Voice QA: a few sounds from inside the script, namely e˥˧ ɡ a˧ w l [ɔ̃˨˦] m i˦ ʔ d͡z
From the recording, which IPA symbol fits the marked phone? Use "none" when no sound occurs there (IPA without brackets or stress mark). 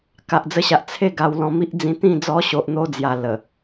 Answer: ɔ̃˧